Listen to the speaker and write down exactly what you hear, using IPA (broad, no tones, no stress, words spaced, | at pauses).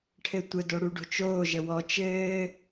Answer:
ʈʰɘtʷə doɽuɖo̤t͡ʃoː ʒəwɔ t͡ʃɘː